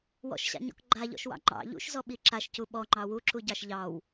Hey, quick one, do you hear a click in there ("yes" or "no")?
yes